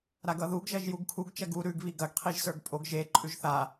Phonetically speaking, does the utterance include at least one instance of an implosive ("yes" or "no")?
no